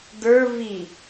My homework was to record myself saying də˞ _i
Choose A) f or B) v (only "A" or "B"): B